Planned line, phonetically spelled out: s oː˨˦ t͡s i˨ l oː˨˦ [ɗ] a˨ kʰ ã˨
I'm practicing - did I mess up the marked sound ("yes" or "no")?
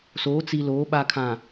yes